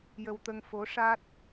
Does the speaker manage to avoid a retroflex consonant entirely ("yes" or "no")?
no